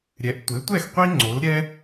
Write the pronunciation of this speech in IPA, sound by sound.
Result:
ɾʲ ɛ˩˥ ʔ tʷ e˩˥ tʷ ɛ˥˩ x qʷ i˥ ŋ͡ǀ o˩˥ l ɾʲ ɛ˥

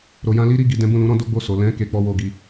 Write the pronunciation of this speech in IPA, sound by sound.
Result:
ɾ o˨ j ã˧ l i˦ ɾ i˦˨ ɡ i˨ d ɛ̃˨˦ b ũ˦˨ l ũ˨˦ ɾ ɔ̃˦ d o˦ ɡ͡b o˦˨ s o˨ l ɛ̃˨˦ k e˧ k͡p ɔ˦ w o˦˨ ɡ i˧

